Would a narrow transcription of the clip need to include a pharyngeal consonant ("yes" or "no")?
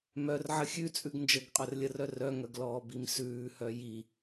yes